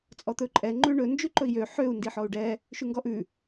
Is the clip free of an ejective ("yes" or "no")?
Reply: no